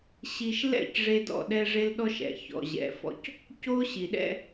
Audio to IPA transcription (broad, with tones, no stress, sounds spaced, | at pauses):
ɕ i˨ ʃ l ɛ̰˦˨ c ʐ e˦ d ɔ̰˦˨ ɗ ɛ˦ ʐ e˦ l ɗ ɔ˦ ʃ ɛ̰˨ ç ɔ̰˨ ʑ ɛ̰˨ f ɔ̰˦ c | c o˦ ɕ i˨ ɗ ɛ̰˦